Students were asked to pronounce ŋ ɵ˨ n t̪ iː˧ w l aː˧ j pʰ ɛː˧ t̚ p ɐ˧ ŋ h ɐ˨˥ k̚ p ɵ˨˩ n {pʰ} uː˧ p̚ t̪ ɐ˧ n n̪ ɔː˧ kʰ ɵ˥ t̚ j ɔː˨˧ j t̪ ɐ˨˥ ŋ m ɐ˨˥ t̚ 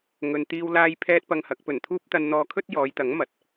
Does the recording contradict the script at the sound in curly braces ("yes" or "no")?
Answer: yes